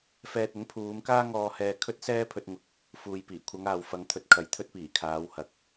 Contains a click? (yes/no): no